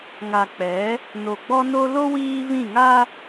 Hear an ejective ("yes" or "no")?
no